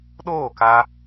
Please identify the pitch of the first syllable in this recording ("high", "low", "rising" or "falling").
falling